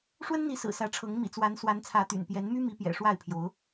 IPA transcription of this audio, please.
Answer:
ʂ w ə˦ n n̪ i˨˦ s ɹ̩˨˩ s ä˨˦ ʈ͡ʂʰ ɤ˨˦ ŋ m ḭ˨˩ t͡s w a˨˦ n s w a˨˦ n t͡sʰ ä˨˦ t̪ y̰˨˩ n p j ɛ˨˦ n m y˦ m i˨˦ p j ɛ̰˨˩ ʂ w a˥˨ ɪ̯ pʰ j o˨˦ ʊ̯

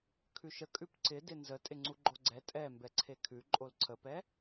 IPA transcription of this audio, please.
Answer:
kʰ ʉ ʃ ə kʼ ʉ p ǀ ɪ d ɪ n z ə tʼ ɪ ŋ͡ǀ u ɡ͡ǃ o ɡ͡ǀ ɛ tʼ ɛ m b ɛ ǀʰ e kʰ ʉ ǃʼ o l ǀʰ ə p ɛ

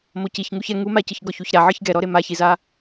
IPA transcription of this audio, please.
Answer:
m o c i ç ŋ u ç ɛ ŋ u m a c ɯ ç ɡ ɔ ç u ç ɾ a ʕ ɯ ç ɡ ɛ ɾ ɔ ɾ e m a ç i z a

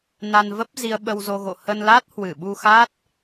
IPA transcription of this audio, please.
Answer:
n a˧ n v ə˦˥ p̚ z i˧ ə̯ ɓ ə˧ w z o˧ ɣ o̰˧˨ h ə˧ n l a˦˥ t̚ h w ɨ˧˩ ɓ u˧ x a˦˥ t̚

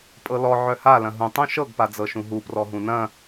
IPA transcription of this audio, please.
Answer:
pʼ ɤ l ɔ ʕ œ h a l ɐ̃ ɦ ũ tˤ ũ ʃ ɤ ɡ p a d͡z ɤ ʃ ũ ɦ u p r ɔ ɦ ũ n ɐ̃

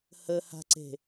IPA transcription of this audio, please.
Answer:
h ə h a̤ ǀ e̤

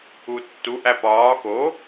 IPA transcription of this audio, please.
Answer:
u tː u ʔ æ p ɒː x o

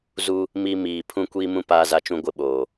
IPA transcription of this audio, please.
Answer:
z u˦ | m i˦ m iː˨ pʰ ũ˦ kʷ iː˦ m ũ˦ p aː˦ z a˦ t͡ʃ ũ˦ ɡʷ ɪ˦ ɓ oː˨

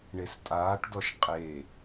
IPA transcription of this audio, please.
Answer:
ɳ e s tʼ aː ʈ d ɔ ʃ qʼ e

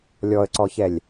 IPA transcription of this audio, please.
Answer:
lʲ ɔ ə̯ ǀ ɔ ç ɛ lʲ

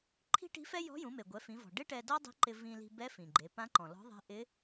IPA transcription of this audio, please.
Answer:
ǃʰ i̤˥ ʈ i̤˧˥ f ɛ˥ j ɔ̤˧˥ j ũ˩˧ m e˩ ɡʷ ɛ˩˧ f ĩ˩˧ v ɔ̤˩ ɖ ɪ˥ ʈ ɛ˧ d ɔ˥ dˤ i̤˧˥ ǃ ɪ˧ v ĩ˧ l i̤˧ b ɛ˧˥ f ĩ˩ ɡ͡ǃ e˩˧ p ã˧˥ ǃ ɔ̃˩ l ɔ̤˧˥ ðˤ ɛ̤˧˥ ʔ ɪ˧˥

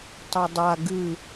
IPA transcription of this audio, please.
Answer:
tˤ o dˤ a ɡ ɨ

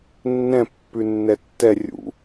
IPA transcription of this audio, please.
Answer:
nː ɛ̃ pː ʉ nː ɛ tː ɛ rʲ ṵ

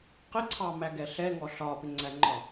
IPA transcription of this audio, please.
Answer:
q ɪ ǀʰ ɑ m æ ɡ ɛ ɬ ɛ ŋ ɔ ɬ ɒ p ɪ ŋ͡ǀ æ ŋ͡ǃ ɒ

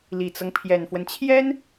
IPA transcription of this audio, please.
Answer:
l i˨˩ t͡s ɤ˦ ŋ pʰ j ɛ˨˩ n f w ə˦ n t͡ɕʰ j ɛ˥ n

